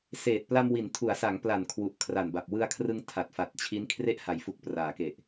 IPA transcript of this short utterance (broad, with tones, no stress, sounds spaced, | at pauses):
s eː˨˩ t̚ p l a˧ m w i˩˦ n tʰ u˩˦ a̯ s a˩˦ ŋ p l a˨˩ n kʰ w u˨˩ ʔ kʰ r a˨˩ n b a˨˩ p̚ w ɯ˧ a̯ kʰ r ɯ˧ ŋ tʰ a˨˩ t̚ f a˨˩ t̚ t͡ɕʰ i˦˥ n kʰ r e˦˥ ʔ h a˩˦ j f u˨˩ k̚ p r aː˩˦ k e˨˩ ʔ